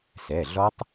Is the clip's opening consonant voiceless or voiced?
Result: voiceless